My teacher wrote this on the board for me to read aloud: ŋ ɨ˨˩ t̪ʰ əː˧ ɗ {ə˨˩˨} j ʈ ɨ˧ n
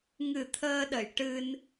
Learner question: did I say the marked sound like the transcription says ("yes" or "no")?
yes